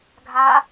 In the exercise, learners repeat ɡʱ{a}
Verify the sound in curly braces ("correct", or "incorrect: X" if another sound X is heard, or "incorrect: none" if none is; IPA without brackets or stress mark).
correct